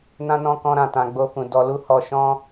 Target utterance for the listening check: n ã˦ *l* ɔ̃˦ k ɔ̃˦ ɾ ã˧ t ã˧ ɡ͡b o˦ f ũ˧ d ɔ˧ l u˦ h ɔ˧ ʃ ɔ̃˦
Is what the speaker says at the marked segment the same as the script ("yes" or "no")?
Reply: no